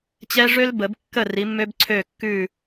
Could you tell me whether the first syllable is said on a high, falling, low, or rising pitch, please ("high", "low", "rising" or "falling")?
high